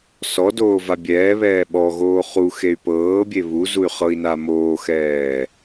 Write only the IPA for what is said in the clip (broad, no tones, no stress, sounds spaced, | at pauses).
s ɔ d oː v a bʲ ɛː β ɛː ɓ ɔ ɣ oː χ u x e y̯ p ɤː bʲ e β u z u y̯ χ ɤ i̯ n a m oː x ɛː